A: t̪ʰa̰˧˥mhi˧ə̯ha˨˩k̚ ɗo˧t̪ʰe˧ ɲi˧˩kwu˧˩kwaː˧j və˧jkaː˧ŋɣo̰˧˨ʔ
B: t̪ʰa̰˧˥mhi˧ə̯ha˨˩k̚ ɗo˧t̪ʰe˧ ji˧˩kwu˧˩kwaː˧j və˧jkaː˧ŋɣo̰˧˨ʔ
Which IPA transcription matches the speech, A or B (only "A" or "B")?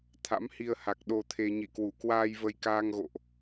A